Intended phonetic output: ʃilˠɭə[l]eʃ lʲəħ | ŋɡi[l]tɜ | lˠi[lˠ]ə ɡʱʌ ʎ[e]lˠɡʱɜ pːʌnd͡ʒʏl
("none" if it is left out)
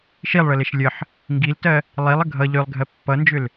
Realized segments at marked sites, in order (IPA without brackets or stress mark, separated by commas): l, l, lˠ, ø